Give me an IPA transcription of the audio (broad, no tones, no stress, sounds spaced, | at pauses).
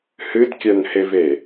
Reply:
h ɨ d kʲ œ n h e v e